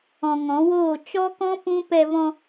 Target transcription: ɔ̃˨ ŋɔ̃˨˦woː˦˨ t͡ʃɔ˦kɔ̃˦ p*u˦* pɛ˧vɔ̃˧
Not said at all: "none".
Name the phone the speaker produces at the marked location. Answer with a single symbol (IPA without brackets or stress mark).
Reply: ũ˦